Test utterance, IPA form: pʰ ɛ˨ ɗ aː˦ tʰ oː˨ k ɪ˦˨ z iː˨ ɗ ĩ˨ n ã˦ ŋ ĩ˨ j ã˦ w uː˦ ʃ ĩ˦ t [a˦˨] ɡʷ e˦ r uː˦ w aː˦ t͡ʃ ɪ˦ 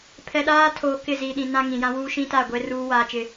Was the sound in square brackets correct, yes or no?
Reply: yes